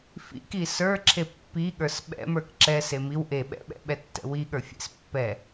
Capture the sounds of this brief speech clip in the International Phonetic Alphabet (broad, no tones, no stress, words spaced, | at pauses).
fḭki sə˞ ǁʰepːiɠə˞s ɓɛ̰mə˞k ǁɛ semiw ʔe ɓɛ̰ɓɛ̰ ɓɛtːɛ̰wiɠə˞ fʲḛspːɛ